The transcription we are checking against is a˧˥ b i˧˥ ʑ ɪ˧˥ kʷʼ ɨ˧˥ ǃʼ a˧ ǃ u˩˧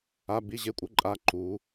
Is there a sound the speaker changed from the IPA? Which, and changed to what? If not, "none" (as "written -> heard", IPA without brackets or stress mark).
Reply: ɨ˧˥ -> ɪ˧˥